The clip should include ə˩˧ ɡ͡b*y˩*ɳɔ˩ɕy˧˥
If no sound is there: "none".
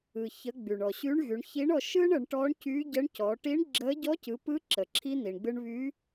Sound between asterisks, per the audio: y˩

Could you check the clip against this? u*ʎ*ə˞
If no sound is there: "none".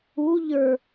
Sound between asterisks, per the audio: ʎ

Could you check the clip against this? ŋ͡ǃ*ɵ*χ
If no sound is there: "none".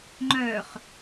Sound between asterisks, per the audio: œ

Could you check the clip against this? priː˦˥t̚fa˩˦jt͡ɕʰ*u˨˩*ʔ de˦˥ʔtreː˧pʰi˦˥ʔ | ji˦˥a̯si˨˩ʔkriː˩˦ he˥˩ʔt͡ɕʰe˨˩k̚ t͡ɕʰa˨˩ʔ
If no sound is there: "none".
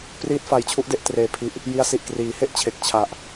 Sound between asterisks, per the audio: u˦˥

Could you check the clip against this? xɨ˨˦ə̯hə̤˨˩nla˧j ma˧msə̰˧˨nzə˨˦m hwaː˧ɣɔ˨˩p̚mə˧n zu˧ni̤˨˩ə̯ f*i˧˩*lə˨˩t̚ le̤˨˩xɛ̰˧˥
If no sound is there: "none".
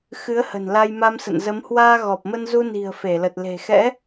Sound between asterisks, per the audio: e˧˩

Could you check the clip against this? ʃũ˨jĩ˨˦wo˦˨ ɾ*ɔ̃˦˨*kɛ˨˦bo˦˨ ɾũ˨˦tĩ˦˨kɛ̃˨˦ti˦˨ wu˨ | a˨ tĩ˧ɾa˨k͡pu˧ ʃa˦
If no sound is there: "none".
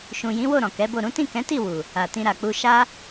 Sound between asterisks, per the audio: ɔ̃˨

